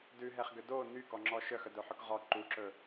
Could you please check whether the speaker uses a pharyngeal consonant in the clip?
yes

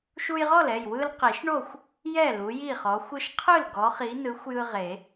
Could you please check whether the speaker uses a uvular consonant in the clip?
yes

